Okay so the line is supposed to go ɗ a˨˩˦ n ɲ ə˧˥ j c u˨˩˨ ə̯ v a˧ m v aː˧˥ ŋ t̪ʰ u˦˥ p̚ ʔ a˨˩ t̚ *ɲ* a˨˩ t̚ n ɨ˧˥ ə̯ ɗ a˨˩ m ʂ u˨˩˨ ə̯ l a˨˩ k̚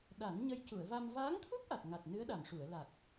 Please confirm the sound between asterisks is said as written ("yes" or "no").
no